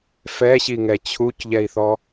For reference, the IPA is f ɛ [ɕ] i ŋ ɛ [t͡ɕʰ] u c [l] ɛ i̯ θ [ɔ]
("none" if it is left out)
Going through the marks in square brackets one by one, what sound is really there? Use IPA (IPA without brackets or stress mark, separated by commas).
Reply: ɕ, t͡ɕʰ, ʎ, ɔ